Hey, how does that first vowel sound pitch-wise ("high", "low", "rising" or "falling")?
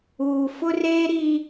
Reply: low